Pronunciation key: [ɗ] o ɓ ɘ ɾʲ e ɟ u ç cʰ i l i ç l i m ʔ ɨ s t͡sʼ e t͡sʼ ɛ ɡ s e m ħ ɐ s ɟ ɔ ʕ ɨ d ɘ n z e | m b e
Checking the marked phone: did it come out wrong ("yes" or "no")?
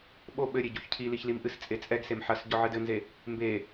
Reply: yes